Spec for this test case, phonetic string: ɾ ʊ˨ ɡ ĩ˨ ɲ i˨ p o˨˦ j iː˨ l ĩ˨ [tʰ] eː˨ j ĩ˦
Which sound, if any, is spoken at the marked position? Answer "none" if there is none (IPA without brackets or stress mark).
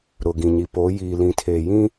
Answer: tʰ